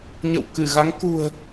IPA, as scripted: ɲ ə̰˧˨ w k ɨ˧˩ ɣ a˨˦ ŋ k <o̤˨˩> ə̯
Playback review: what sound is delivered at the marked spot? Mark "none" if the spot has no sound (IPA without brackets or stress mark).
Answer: ṳ˨˩